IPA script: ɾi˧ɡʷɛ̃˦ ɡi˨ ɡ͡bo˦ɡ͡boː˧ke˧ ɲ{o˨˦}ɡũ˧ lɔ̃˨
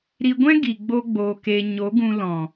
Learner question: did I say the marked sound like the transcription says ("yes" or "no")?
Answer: yes